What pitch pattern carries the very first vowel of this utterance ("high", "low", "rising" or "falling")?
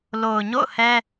low